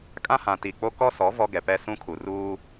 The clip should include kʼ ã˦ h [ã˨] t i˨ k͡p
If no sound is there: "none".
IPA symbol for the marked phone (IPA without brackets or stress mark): ã˨